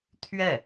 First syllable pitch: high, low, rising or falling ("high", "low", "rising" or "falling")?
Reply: falling